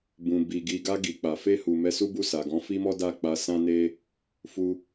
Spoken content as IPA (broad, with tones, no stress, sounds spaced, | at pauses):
b ũ˨ b i˨ ɡ i˨ ɡ a˧ ɡ i˨ k͡p a˨ f e˧ h u˨ m ɛ˧ s u˦ b u˦˨ s a˨ ɡ ɔ̃˨˦ f i˦ m ɔ˦ d a˦˨ k͡p a˧ s ã˦ n e˦ | f u˧